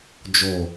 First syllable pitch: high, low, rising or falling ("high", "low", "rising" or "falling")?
low